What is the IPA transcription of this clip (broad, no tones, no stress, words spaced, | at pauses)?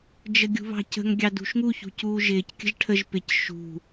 d͡ʒəɡʲṳβɑ̤cə̤ŋ ɡʲɑdṳʃŋu çṳcuːʒɪːc kʲə̤ʒʈʰəʒ pɪc ʃṳ